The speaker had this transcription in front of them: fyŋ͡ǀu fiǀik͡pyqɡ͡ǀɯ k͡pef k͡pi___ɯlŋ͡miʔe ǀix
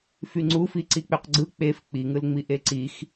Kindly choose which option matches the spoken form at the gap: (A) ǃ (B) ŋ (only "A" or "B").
B